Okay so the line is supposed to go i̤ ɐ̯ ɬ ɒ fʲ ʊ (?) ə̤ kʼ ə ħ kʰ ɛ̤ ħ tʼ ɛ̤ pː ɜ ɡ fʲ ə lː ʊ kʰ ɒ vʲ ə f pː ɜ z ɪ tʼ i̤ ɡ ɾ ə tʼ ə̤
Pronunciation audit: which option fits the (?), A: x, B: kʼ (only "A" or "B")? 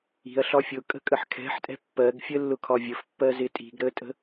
B